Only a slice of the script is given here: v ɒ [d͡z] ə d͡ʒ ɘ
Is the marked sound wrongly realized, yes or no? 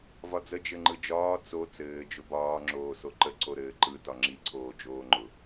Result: no